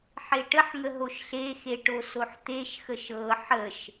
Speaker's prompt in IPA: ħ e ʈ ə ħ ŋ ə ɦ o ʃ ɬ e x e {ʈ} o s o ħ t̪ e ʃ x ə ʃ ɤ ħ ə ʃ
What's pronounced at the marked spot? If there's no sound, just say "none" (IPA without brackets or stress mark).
ʈ